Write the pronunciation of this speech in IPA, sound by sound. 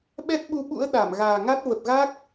ɓɛ˦˥t̚ɓu˧ɓṵ˧˥ə̯ ɗa˧˩mɣaː˨˩ŋa˦˥t̚ və˨˩p̚ɣa˦˥k̚

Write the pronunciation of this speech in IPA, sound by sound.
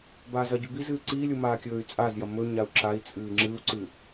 baːzɐɟʉ biz ɨːǀiːlʲu maːkʲɵːy̯t͡sʼazjɐ mɵɲau̯ ǁai̯t͡sʼɨː ŋ͡ǁɨu̯ǀɨ

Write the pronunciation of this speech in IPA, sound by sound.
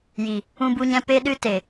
ji˨ | ũ˧bu˧ɲɛ̃˧ pe˦ɗɨ˦ te˨

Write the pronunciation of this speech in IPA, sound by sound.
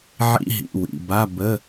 ʕḭ˧˥˧ɦḭ˩˧˩wḭ˩˧˩ba˧˥˧ bə˧˥˧

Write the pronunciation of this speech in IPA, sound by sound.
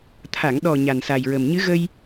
t̪ʰa˨˩˨ŋɗɔ˨˩ ɲa˨˩nsa˨˩jɹə˨˩m ɲɨ˧˥ɣə˧j

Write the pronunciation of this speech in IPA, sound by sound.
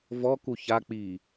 vɔku ça k͡pi

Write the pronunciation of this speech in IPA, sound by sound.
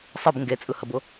sˤɯb ŋɡet͡sʼɯhəbʊ

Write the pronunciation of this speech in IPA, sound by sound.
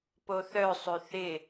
poθœ sˤøθɪ

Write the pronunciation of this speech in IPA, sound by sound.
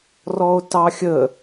rɔo̯tɑxʲə

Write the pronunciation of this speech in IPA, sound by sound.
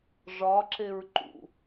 ʐɒǁeɹ ǃṵ

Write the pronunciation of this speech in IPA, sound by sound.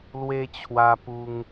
lwe˧t͡ɕʰwa˧pu˧ŋ

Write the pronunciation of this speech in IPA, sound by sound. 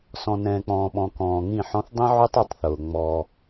sɔ̃˨nɛ̃ː˨k͡pɔ̃ː˨ ɓɔ̃˨kɔ̃ː˨ŋĩ˦˨ħɔ̃˦θ dˤĩ˦ʕʉ˦tˤi˨˦tˤθʊː˨ ŋ͡mɔ˦

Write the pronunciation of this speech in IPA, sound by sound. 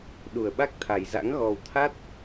ɗu˨˩ə̯ɓa˦˥k̚t̪ʰa˨˩jza̰˧˥ŋ ɣɔ˨˩wt̪ʰa˦˥t̚

